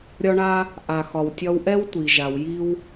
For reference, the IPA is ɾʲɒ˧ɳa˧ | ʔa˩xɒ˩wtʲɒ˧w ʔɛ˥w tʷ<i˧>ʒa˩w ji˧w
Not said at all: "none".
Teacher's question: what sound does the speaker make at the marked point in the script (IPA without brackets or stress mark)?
i˩